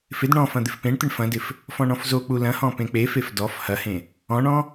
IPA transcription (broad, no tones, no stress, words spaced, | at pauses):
fɪd ɳɔ̃fɐ̃ d̪ɪfpẽɳt̪ɪɳ fɐ̃dɪf | fɔ̃ɳɔ̃fzok͡pu lɐ̃hɔ̃ pẽk͡pefef dɔf hɐhẽ | ɔ̃ɳɔ̃